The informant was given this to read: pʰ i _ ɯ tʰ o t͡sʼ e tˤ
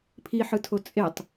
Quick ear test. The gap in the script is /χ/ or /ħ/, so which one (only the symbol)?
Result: ħ